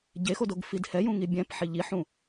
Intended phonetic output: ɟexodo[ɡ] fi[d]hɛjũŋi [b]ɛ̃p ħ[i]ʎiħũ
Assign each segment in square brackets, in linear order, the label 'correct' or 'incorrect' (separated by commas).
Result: correct, correct, incorrect, correct